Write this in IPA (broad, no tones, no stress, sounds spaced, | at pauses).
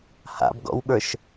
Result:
h a̰ b ɡ ɔ̰ w ɠ ə˞ ʃ